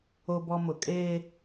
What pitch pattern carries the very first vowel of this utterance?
high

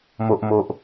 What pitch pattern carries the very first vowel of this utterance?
low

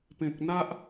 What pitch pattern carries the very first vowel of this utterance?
low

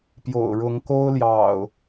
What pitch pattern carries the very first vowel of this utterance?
low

